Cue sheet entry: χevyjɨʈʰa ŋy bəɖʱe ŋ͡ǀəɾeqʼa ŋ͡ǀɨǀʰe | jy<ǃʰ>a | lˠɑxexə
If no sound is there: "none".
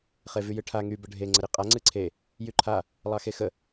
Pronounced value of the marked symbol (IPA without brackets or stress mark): ǃʰ